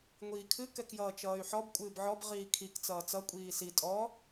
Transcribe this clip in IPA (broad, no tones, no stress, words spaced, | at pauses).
ŋʷiːkʰɨ kɛkjʌːt͡ʃʌːy̯ħɔb kʷʼɨːbʕɔb ʁiːkʰik t͡sʌːt͡sʌ kʷʼiːsi tʼɔ